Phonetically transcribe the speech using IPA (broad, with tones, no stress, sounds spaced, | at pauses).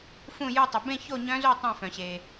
f ũ˥˧ j u˥˧ tˤ ɨ˧ b ẽ˥˧ ç o˥˧ ɲ œ̃˦˥ z o˥˧ tˤ œ̃˥˧ f œ̃˧ ɕ e˧